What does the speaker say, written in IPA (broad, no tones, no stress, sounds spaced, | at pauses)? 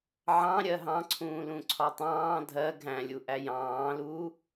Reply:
ʕ ɑ̃ ɾʲ ɜ ɦ ɑ̃ ǀʰ ũː l ũ ǀʰ ɒ tˤ ɑ̃ː dʱ ɜ ɡʱ æ̃ lʲ u ʔ æ j ɑ̃ː l uː